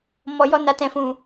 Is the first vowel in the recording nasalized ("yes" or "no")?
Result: no